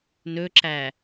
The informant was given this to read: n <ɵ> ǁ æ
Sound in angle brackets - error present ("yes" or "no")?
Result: no